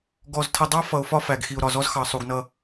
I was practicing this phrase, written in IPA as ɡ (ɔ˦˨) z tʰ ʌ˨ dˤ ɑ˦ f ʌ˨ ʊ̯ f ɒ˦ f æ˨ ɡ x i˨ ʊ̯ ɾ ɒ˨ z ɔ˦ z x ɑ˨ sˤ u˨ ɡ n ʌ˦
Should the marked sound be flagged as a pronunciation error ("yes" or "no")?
yes